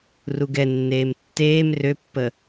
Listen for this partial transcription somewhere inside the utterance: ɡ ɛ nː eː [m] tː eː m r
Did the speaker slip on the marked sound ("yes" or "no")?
no